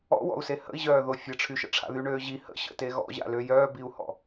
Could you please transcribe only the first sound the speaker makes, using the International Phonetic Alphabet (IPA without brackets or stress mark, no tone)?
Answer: ɔ̰